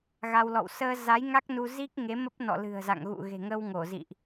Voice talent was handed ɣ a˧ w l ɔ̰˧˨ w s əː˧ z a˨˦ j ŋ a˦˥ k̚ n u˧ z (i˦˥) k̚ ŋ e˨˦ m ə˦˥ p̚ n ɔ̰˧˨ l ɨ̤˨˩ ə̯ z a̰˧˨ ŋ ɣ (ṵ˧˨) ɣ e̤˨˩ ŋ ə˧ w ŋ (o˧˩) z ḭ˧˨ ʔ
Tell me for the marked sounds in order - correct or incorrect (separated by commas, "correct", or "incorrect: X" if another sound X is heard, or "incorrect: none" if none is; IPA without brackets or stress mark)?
correct, correct, correct